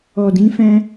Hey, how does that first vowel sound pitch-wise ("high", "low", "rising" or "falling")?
low